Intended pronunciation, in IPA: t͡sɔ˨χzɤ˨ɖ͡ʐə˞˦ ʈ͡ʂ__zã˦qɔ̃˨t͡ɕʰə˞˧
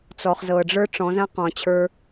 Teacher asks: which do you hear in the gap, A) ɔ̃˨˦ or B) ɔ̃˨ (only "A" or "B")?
A